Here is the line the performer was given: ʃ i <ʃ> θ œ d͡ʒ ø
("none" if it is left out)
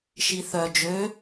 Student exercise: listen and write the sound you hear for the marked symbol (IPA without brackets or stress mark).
none